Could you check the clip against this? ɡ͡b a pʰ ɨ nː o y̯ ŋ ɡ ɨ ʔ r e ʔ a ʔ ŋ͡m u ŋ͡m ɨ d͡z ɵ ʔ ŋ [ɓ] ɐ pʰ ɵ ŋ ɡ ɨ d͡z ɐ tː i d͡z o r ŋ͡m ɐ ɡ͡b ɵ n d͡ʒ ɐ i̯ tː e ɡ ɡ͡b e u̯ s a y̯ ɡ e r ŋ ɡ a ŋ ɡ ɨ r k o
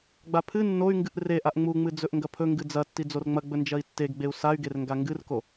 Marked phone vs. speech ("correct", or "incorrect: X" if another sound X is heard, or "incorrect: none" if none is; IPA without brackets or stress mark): incorrect: ɡ